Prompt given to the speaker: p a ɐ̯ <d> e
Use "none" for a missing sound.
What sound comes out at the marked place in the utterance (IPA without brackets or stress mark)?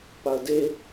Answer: d